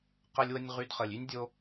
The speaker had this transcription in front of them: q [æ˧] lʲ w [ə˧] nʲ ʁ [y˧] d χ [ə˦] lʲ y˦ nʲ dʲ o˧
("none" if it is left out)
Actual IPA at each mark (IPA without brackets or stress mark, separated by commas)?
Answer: ə˧, ə˧, y˧, ə˨